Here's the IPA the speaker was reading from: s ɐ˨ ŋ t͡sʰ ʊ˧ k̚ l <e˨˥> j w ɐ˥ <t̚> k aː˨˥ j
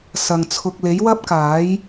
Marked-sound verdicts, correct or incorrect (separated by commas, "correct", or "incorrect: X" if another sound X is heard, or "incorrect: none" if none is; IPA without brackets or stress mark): correct, incorrect: p̚